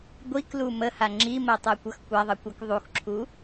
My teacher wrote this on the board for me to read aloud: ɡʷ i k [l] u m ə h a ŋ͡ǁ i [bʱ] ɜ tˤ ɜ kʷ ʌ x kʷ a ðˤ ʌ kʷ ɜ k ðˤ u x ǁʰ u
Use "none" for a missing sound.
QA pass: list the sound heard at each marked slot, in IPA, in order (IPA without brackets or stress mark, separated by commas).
l, m